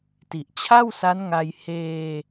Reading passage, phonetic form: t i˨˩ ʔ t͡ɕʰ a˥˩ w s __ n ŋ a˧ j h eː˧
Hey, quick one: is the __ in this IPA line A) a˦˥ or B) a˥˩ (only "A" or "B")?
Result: A